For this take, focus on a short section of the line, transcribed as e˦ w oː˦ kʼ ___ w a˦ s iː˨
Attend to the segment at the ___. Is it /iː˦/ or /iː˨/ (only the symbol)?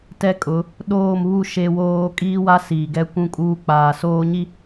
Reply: iː˦